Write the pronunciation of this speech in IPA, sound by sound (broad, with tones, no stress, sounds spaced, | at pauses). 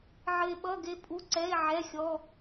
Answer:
ʕ ɘ˧ e̯ ɓ ʌ˧˥˧ ɡ e˧ pʼ u˧˥˧ ǀ ɛ˧˥˧ e̯ ʕ ɛ˧˥˧ xʲ ɔ˧˥˧